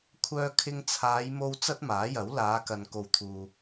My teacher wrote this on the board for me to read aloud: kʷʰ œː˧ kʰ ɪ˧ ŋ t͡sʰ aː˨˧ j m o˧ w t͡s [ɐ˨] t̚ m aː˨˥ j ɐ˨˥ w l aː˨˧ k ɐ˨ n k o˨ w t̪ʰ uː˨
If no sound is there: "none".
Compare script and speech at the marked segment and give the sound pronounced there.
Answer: ɐ˥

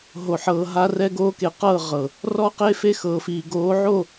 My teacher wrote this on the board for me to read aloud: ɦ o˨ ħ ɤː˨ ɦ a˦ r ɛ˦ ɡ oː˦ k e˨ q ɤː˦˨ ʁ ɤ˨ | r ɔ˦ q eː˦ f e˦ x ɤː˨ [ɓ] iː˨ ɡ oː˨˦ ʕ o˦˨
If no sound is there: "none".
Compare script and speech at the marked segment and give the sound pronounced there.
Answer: f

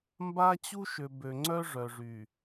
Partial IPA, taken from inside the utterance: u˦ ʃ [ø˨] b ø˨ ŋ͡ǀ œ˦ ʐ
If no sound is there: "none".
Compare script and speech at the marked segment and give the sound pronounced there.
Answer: ø˨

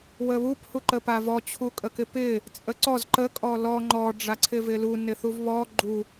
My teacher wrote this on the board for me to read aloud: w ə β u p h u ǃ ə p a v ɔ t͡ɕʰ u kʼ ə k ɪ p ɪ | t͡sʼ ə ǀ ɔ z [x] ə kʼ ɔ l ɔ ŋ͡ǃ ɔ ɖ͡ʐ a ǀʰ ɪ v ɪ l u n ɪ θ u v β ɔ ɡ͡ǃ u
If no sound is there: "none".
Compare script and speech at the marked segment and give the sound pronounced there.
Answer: ǃ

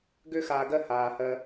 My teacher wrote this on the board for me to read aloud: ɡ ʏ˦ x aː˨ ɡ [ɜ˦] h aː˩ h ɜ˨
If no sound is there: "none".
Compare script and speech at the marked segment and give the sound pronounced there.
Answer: ɜ˦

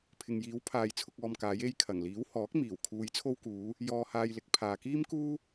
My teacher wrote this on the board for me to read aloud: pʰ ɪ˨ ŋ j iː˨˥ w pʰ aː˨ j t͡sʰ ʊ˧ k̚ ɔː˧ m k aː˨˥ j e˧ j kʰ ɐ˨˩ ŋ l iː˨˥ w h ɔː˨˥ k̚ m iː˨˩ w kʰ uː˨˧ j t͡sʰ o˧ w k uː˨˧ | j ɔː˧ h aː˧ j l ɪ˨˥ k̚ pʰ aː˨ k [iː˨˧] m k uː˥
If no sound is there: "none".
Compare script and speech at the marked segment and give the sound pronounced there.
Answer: iː˥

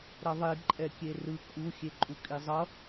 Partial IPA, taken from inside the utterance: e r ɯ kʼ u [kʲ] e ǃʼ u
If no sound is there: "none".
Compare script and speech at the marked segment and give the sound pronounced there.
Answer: xʲ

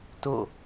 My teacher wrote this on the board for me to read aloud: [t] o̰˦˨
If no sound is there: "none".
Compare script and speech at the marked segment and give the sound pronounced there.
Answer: t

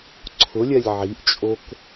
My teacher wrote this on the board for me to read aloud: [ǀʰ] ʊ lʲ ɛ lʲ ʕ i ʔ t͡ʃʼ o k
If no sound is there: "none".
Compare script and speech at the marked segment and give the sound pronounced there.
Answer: ǀʰ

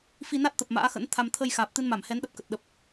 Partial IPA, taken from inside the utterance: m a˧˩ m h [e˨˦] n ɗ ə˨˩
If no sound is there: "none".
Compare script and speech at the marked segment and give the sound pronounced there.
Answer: ɛ˨˦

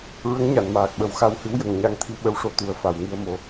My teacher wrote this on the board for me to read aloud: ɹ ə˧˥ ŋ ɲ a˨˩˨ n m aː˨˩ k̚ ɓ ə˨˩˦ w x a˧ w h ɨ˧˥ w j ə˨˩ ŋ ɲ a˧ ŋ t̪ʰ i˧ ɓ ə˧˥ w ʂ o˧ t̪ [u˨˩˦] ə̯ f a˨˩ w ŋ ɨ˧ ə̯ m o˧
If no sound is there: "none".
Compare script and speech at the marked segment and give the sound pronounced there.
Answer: u˨˩˦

